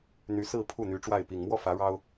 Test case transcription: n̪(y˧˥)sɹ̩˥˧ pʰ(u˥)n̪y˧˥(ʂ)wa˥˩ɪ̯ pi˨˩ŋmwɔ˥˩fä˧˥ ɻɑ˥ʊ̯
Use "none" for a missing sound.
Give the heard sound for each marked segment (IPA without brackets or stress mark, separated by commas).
y˧˥, u˥˩, ʈ͡ʂ